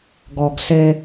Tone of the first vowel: low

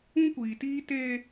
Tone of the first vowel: high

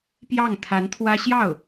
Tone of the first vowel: falling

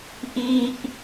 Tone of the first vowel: high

